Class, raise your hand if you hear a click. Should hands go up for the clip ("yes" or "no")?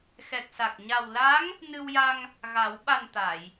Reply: no